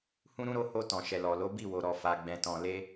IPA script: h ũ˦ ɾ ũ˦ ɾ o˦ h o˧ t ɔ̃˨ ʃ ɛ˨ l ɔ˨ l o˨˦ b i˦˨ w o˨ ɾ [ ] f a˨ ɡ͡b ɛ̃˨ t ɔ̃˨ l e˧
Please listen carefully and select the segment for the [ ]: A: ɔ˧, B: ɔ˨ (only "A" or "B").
B